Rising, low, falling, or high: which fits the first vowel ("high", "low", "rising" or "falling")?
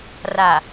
low